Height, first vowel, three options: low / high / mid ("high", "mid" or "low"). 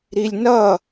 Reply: high